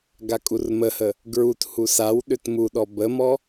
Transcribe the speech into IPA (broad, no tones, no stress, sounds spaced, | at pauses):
ɡ a kʼ u r m ə h ə | ɡ ɹ u t h u s a w ɗ ʏ t m u ɗ ɔ b ə m ɔ